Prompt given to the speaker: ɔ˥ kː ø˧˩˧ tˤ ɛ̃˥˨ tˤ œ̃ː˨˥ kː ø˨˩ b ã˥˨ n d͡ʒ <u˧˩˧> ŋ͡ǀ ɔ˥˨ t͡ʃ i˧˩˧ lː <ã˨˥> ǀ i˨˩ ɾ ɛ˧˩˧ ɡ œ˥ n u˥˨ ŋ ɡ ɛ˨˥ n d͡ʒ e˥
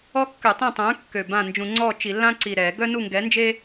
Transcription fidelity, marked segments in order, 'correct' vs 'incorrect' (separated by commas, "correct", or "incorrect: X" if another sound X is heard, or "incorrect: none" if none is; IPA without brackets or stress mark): incorrect: ũ˧˩˧, incorrect: ã˥